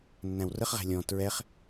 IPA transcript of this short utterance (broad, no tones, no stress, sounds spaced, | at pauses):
nː æ̃ w r ə χ ʁ æ̤ lʲ ɔ̃ t ɹ ɛ χ